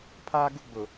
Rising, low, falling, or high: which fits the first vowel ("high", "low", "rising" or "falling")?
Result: high